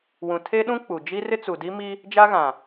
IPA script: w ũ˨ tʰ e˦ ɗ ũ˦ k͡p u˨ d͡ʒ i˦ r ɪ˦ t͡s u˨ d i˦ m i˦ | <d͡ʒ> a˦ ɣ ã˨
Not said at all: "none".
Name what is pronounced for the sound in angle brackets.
d͡ʒ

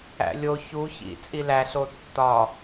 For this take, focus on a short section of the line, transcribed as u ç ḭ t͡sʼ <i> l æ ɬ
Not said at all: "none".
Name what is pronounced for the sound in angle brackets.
i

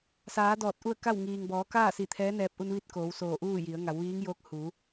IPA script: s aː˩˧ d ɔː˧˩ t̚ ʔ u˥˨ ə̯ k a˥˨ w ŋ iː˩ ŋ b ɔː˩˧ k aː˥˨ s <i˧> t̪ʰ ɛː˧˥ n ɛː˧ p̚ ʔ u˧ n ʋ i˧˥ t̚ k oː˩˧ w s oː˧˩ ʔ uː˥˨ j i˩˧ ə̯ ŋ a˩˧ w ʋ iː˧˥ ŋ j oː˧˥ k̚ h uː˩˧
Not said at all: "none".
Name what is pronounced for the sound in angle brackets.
i˧˩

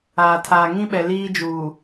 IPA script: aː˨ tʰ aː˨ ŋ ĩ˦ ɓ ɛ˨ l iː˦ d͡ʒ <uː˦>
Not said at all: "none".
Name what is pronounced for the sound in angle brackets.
uː˨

